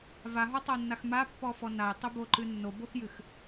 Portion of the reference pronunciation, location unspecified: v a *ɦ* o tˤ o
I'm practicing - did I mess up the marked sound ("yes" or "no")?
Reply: no